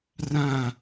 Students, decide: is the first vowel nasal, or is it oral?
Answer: nasal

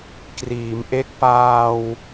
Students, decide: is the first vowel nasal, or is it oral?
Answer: oral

